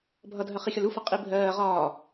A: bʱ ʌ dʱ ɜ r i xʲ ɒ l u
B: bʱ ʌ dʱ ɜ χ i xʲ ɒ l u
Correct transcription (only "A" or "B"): B